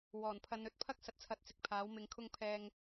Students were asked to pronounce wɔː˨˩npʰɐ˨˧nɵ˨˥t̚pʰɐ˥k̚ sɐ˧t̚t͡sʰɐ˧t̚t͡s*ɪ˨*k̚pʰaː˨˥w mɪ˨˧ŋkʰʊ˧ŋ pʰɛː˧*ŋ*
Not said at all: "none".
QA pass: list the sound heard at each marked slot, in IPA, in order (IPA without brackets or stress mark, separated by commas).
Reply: ɪ˨, ŋ